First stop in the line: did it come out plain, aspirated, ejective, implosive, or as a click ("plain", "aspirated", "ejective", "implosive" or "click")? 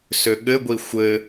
implosive